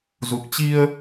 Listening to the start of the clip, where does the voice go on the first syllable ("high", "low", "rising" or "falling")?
low